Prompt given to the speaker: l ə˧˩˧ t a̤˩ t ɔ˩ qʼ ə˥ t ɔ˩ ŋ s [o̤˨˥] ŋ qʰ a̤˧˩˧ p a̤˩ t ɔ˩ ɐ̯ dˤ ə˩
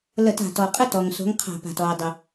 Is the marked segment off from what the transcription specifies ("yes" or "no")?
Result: no